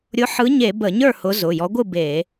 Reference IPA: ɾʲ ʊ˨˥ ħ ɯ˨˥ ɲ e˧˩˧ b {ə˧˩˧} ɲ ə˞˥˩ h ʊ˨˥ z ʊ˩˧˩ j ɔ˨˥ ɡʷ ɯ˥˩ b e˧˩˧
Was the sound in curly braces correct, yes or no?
yes